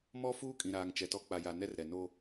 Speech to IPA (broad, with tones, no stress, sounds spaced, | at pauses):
m ɔ˦ f uː˦ kʼ ĩ˨ ɾ aː˨ ŋ t͡ʃ ɛ˨ t ɔ˨˦ k͡p a˨ j a˨ n ɛ˦ r ɾ ɛ˨ n o˦